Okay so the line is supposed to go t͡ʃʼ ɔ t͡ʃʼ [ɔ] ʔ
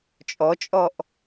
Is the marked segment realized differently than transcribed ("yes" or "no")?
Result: no